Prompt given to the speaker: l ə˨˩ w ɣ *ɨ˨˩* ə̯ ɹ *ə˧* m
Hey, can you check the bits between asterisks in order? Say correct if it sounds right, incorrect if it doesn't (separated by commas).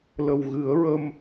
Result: incorrect, correct